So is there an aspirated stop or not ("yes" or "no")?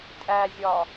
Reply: no